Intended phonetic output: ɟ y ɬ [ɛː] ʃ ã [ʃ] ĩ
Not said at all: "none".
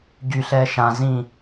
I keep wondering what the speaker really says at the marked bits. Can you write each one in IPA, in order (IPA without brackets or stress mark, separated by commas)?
ɛː, z